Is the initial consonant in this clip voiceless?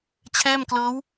yes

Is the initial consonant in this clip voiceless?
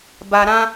no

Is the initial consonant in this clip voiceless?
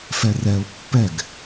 yes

